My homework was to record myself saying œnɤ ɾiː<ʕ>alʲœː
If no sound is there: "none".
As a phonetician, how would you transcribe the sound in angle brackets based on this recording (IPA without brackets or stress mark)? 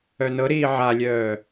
ʕ